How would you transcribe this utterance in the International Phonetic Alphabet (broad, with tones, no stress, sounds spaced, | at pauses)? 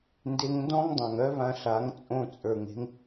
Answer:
n d e˧ ŋ n d ɔ̃˦ ŋ dˤ ã˨ ŋ œ˦ β ã˧ ɬ a˨˦ ŋ t͡sʼ õ˦˨ t͡sʼ ə˞˨ ŋ e̤˦ ŋ